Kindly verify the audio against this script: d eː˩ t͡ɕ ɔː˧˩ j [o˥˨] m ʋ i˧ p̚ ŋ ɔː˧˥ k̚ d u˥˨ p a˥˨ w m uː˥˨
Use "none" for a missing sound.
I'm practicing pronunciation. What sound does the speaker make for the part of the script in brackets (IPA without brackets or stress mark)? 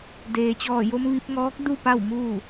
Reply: o˧